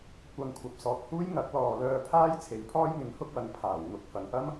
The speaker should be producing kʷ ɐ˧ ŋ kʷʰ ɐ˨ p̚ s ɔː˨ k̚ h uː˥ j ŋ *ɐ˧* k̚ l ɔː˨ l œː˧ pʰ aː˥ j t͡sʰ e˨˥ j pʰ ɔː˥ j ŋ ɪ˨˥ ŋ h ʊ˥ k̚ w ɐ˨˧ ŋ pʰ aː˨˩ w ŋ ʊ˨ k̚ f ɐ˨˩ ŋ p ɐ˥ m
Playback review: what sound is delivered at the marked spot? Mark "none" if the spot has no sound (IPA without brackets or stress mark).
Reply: ɐ˨˥